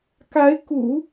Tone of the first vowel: rising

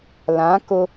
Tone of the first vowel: rising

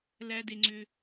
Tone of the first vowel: high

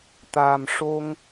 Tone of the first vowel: low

